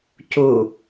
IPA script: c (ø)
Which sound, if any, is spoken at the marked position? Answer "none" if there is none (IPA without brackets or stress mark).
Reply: u